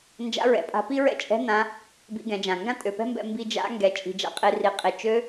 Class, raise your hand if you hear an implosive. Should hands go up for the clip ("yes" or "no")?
no